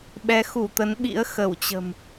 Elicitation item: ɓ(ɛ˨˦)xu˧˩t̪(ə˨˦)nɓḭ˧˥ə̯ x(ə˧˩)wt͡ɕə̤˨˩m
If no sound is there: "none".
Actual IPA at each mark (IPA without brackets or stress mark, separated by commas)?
ɛ˨˦, ə˨˦, ə˧˩